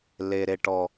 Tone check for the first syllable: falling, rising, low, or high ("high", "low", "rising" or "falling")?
low